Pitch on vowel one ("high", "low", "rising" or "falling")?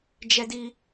high